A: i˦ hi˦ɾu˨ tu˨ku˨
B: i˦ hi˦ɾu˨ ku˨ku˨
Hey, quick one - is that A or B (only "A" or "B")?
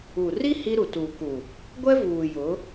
A